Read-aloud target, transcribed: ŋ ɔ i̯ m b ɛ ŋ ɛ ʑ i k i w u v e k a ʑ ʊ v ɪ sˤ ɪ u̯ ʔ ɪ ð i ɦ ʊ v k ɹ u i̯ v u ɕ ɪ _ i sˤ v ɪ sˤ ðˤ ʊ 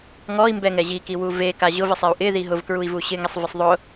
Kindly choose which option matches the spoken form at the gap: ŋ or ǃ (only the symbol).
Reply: ŋ